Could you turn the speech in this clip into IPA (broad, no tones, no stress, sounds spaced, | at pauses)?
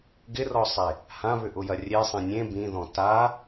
ɡ ɪ r ɔ sˤ e | h ã β ʏ ʔ ʊ j ɐ rʲ e sˤ ẽ nʲ ẽ b ĩ ð ɔ̃ t a